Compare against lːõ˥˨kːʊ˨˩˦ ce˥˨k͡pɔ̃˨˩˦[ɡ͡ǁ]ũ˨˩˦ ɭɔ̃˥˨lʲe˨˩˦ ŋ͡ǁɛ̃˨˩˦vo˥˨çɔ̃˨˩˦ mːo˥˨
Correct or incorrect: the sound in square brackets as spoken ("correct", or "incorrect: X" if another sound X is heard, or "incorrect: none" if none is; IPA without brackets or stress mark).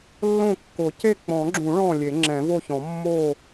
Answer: correct